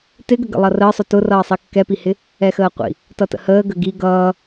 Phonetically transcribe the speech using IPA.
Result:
t ɪ ɡ ə ɡ ə̰ lˠ ʌ r əː sˤ ʊ t ʊ r ʌː sˤ i kː ɛ p i h ɪ | ɛ x əː qʷ ḭ | t ʌ t ə̰ h əː ɡ ə ɡ i ɡ ʌː

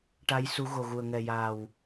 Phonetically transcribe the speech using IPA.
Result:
ʈ a˧˥ j s u˧˥ ɣ o˨˩ ɣ u˨˩ ə̯ ŋ ɛ˨˩ j aː˨˩ w

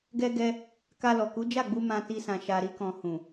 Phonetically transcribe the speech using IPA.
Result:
ɡ ɛ˧ ɡ ɛ˧ | k a˧ l ɔ˨ k u˨˦ d͡ʒ a˦˨ ɡ͡b u˧ m ã˧ t i˧ s ã˨ ʃ a˨ ɾ i˧ k ɔ̃˨ h ũ˨

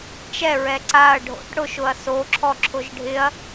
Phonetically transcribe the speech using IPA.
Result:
t͡ʃ ɛ ɹ ɛ ǀ a ɐ̯ ɖʱ o̰ ʈ ɽ ʊ ʃ ʊ ɐ̯ s o ǁʰ ɔ ǁʰ ʊ ʒ ɖʱ ɪ ɐ̯

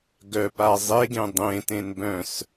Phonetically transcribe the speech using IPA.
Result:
ɡ œ p a zˤ e ɡ ẽ dˤ ẽ t ẽ n b œ̃ s

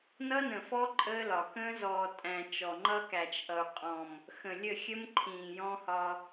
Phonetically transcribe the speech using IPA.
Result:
n ʌ˦ n ə̃˨ f ɔ˦ ǃʼ əː˦ l ɒ˨ k ə̃ː˦ z ɔː˨ tʼ æ̃˨ t͡ʃ ɔ˨ ŋ͡ǃ ʌ˦ k æ˨ t͡ʃ ʔ ʌ˨ u̯ qʼ ɔ̃˨ m | x ə̃˨ lʲ ə˦˨ xʲ ə˦ m ǃʰ ĩː˨ j ɔ̃˦ h ɒ˦

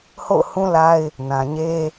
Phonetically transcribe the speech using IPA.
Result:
h o̰˦˨ ʊ̯ h ũ˦ l a˦ ɪ̯ | n ã˨ ɲ e˦

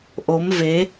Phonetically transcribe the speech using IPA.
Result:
ʔ o˨˦ m v e˨˦

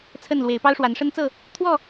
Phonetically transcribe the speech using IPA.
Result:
t͡sʰ ə˥˨ n l w e˨˦ ɪ̯ p ɑ˦ ʊ̯ ʂ w a˨˦ n ʂ ə˦ n t͡s ɤ˥˨ | t̪ʰ w ɔ˥˨

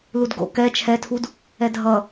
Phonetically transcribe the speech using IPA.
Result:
l u d ɡ o̰ k ɛ t͡ʃʰ ɛ tʰ u d | ɛ dʱ ʌ

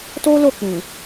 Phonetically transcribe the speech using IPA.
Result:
t o˦ l o˦˨ k͡p ĩ˨

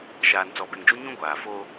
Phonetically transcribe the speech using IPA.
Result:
ʃ aː˨ n t͡s ɔ˨ b ɛ˨ ŋ d͡ʒ u˦ ɲ ũ˦ ɡʷ aː˨ f o˦

